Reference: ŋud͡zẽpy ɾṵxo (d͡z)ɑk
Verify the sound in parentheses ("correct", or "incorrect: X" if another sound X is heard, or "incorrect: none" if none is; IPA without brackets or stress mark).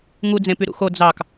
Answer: correct